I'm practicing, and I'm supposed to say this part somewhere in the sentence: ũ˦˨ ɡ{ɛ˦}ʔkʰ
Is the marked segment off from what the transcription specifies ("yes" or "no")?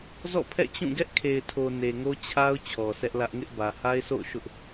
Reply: no